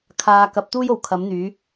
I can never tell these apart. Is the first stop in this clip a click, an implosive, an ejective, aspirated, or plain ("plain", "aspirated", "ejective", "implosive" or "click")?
aspirated